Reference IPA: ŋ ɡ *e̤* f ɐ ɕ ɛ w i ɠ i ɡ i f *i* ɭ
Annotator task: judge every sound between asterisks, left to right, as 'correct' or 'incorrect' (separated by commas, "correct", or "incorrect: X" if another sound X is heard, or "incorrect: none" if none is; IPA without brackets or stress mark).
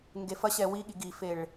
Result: incorrect: e, incorrect: e